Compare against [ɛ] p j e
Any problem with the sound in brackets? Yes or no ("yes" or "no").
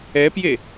no